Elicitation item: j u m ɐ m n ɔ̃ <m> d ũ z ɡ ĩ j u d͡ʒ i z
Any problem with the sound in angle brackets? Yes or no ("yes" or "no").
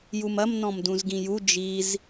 no